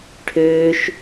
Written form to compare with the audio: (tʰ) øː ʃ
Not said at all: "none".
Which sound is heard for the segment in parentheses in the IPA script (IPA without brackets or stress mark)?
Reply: ʈʰ